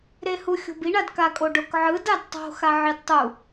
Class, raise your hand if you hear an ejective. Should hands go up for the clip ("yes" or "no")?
yes